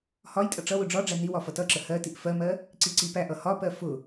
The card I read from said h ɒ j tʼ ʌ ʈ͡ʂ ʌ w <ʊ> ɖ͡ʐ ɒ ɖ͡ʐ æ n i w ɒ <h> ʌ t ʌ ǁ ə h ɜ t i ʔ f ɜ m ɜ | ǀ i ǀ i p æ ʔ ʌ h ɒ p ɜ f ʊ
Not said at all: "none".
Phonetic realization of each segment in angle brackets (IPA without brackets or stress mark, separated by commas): ʊ, f